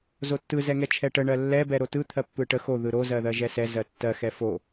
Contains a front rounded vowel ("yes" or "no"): no